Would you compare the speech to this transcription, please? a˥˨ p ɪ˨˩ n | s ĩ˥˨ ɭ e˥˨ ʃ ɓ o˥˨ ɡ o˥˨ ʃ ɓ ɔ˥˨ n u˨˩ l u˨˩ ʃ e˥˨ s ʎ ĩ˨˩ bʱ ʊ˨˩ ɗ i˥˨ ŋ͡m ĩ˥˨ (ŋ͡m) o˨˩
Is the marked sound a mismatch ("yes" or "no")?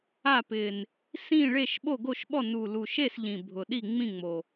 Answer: no